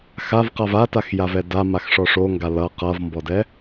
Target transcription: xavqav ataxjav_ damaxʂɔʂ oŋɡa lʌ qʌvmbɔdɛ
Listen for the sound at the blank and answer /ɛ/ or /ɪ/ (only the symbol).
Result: ɛ